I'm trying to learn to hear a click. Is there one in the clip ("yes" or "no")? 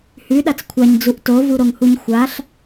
no